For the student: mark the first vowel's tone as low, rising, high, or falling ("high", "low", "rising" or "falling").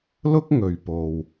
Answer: high